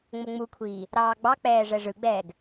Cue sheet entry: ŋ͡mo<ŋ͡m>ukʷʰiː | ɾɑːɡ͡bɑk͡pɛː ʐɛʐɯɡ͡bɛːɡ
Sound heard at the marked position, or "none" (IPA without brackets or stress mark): ŋ͡m